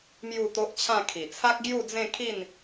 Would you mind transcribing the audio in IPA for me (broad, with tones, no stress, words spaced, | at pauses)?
mju˥˧t̪o˦ʔt͡ɕʰã˥˧ kʰi˨˩t͡sʰa˦k̚ ɡju˥˧d͡zẽ˥˧kʰi˥˧n